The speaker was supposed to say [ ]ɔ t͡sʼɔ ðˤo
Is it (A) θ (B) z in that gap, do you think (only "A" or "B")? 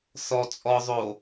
A